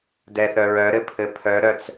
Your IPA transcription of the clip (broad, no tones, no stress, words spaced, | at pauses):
dɛθœɹœ ɾɘpʰɘpʰœɾœt͡s